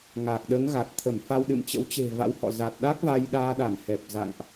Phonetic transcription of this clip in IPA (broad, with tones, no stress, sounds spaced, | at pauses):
ŋ a˨˩ k̚ ɗ əː˨˦ ŋ ɣ a˨˩ t̚ t̪ʰ ə˧˩ m f a˧ w ɗ ɨ̰˧˨ m t͡ɕ ə̰˧˥ w t͡ɕ e̤˨˩ v a̰˧˥ w h ɔ̰˧˨ z a˨˩ t̚ ɗ a˦˥ k̚ v a˧ j ɗ aː˧ ɗ a˧˩ m h ɛ˨˩ p̚ z a̰˧˨ ŋ ʔ